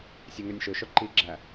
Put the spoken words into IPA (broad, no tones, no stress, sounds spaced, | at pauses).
sʲ e ŋ ø nʲ ʃ ø ʃ œ ǃ i ɡ͡ǁ æ